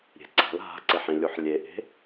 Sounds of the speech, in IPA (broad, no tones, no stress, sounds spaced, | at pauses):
ɾʲ e̤ ǀ a̤ l ɦ a̤ ǀ e ħ ĩ lʲ u ħ lʲ e ʔ e̤